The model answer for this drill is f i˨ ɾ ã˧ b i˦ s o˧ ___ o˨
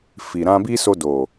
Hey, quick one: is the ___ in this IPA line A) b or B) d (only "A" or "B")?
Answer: B